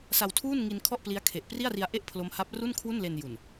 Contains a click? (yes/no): no